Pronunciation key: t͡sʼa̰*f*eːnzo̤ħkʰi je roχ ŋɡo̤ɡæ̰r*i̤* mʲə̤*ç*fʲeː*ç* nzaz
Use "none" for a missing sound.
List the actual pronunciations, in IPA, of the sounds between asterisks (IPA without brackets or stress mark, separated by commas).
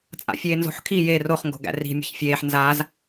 fʲ, i̤, ç, ħ